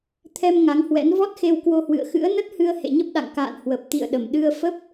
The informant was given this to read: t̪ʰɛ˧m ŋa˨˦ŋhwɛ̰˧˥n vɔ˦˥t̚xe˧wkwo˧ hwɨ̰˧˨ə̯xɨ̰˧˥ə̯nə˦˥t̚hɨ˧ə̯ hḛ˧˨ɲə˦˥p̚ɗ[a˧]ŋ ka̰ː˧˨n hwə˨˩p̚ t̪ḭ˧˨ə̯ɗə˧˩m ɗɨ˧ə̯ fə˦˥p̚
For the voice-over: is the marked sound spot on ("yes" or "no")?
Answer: no